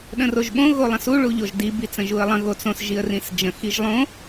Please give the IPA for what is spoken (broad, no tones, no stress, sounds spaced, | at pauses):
ɗ ə̃ r o ʒ ɓ õ ɣ o lˠ ə̃ s u ɭ u ʎ o ʒ d i b i t͡s ə̃ ʒ u ə̯ lˠ ə̃ ɣ o t͡s õ s ʒ i ə̯ r ĩ s d͡ʒ ə̃ x i ʒ lˠ õ